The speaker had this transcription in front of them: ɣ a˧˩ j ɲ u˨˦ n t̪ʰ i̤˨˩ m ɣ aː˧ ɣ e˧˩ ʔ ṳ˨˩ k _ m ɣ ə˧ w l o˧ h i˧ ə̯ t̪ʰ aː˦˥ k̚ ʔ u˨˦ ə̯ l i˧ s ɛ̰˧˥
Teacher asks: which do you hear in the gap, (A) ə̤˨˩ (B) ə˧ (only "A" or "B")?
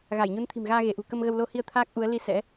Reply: B